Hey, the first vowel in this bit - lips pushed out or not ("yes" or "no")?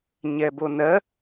no